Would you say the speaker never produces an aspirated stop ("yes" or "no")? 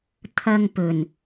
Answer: no